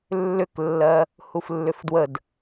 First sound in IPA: lː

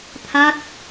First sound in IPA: t̪ʰ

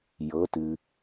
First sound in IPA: j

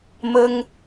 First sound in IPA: m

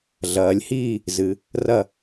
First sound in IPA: ɮ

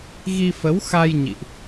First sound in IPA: ɣ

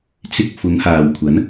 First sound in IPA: t͡s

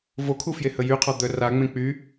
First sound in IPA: v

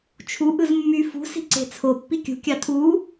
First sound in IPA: t͡ʃʰ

